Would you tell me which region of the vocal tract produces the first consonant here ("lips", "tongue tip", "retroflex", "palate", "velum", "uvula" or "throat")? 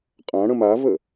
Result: uvula